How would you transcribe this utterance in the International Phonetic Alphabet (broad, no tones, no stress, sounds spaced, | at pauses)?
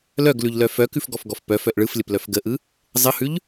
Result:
l œ ɡ l ʉ ʎ l œ f œ k ʉ f ɡ ɔ f ɡ ɔ f p œ f œ ʔ ɭ ɯ f lʲ ə p l œ f ɡ ə ʔ ɯ | zˤ ə h ʉ ʎ